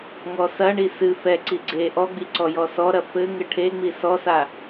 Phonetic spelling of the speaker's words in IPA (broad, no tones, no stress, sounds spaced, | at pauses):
ŋ ɔ s ɐ ɳ i s ɨ f ɛ ǀ i ɡ͡ǀ e ʔ ɔ ɡ͡b i ǀ ɔ j ɔ s ɔ ɾ ɐ f ɘ ŋ ɘ ʈʰ e ŋ͡m i s ɔ s a